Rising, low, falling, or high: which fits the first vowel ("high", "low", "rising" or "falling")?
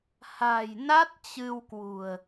low